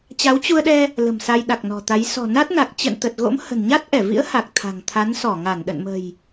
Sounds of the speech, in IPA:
t͡ɕ a˨˦ w t͡ɕ u˧ ə̯ ɗ ɛ˧ | l ə̤˨˩ m s a˧ j ɗ a˨˩ k̚ n ɔ̤˨˩ t̪ a˨˦ j s ɔ̤˨˩ n a˦˥ t̚ n a˨˩ k̚ t͡ɕ ə̰˧˨ n t̪ ə˨˩ t̚ ɣ o̰˧˥ m h ə̤˨˩ n ɲ a˦˥ t̚ ʔ ɛ˧˩ v ḭ˧˥ ə̯ h a˨˩ k̚ t̪ʰ a̤˨˩ ŋ t̪ʰ a˨˦ n s ɔ˧˩ ŋ a˧˩ n ɗ ə̰˧˨ n m ə̤˨˩ j

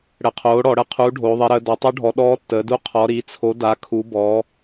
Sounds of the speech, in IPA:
ɽ ə˩˥ qʰ oː˩˥ ɽ ɔ˩˧ ɽ ə˧˥ qʰ uː˩˥ ɖʱ oː˩˧ ðˤ i˩˧ ɾ əː˩˧ d ɔ˩˧ tˤ u˧˥ ɖʱ ɔ˩˧ ɗ ɔː˧˥ tː əː˩˧ d u˧˥ qʰ ɔ˩˧ ɾ i˩˧ t͡sʰ o˩˥ d a˩˧ kʰ u˩˧ b ɔ˩˧

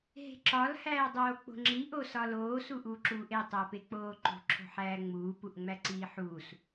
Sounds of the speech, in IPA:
ɦ e̤ ǁ ɒ l h æː dˤ oː k͡p o̤ ŋ͡ǁ i ʔ o s ɒ l oː s u ʔ uː ǁ uː ʔ e tˤ æ p e k͡p oː ǃ ṳ ǁʰ o̤ ħ æː ŋ͡m uː p u ʔ ŋ͡m æ ǀ iː ħ uː s

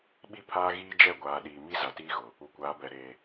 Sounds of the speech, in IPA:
ɓ i˦ pʰ aː˦ ɣ iː˦ d͡ʒ ɛ˦˨ ɡʷ aː˨ ɗ iː˨ m i˦ z a˨ t iː˦ ɣ ʊ˨ | u˨ kʷ aː˨˦ b ɛ˨ ɾ eː˨

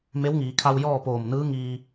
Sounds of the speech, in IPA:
m e˧˥ w ŋ iː˩˧ kʰ a˧ w j ɔː˥˨ p oː˧˩ m n ɯː˧˥ ŋ iː˩

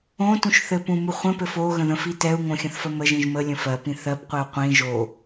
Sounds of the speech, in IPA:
õ t ũ ʃ θ ɘ p ũ m u χʷ ə̃ p ɘ f o ɣ ə̃ ð ə̃ f i t ɛ u̯ ŋ õ xʲ ə̃ θ f ə m ə ʒ ĩ ʒ m ə lʲ ə̃ f ɜ p ĩ θ ɜ p qʷ i u̯ qʷ ĩ ʒ o

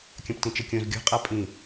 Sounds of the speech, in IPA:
kʲ ɐ̃ p t ĩ t͡ʃ ɘ kʲ õ z ɡʲ ɔ̤ qʼ a pʼ ĩ

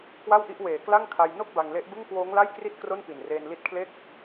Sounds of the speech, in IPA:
k w a˥˩ w ʔ i˦˥ ʔ w eː˨˩ k l a˥˩ ŋ kʰ a˧ j n o˥˩ k̚ b a˧ ŋ l e˦˥ ʔ b ɯ˥˩ ŋ k w oː˦˥ ŋ l a˥˩ j k r i˥˩ t̚ k r o˥˩ n p i˨˩ n r eː˧ n l i˦˥ t̚ kʰ l e˥˩ k̚

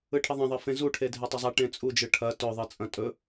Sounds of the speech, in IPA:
ɯ ʈʰ ə ðˤ ɐ̃ ðˤ ɜ f ẽ z u ʈʰ e dʱ e tˤ ɵ zˤ a ʈ ẽ t͡sʼ u d͡ʒ ɯ ʈʰ ɐ t ɵ ðˤ ɯ t͡sʼ ɐ̃ tʼ ɵ

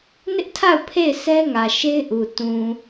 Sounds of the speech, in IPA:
n ɪ˦ ʔ tʰ a˦˨ ʊ̯ pʰ e˦˨ ɪ̯ sʰ ɛ˦ ŋ ä˨ ʃ e˦ ɪ̯ ʔ u˨ t ũ˨

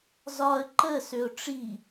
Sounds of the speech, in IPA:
z ɒ ə̯ ǃ ə s ø ʊ̯ ʈ͡ʂ i

